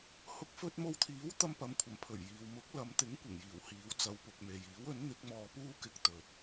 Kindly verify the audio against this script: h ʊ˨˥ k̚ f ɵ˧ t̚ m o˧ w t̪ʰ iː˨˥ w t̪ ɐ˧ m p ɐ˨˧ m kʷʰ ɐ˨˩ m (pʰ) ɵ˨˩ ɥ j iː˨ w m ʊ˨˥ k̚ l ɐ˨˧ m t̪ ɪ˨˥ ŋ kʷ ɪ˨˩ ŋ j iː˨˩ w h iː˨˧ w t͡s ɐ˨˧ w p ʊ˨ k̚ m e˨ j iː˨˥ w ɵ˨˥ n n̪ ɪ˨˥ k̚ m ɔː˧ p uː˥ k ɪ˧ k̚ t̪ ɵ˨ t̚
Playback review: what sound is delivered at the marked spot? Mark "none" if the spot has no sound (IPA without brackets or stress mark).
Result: pʰ